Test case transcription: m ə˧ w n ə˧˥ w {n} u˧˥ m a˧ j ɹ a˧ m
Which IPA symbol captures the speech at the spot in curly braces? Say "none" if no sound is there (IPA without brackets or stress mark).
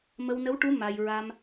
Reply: ʈ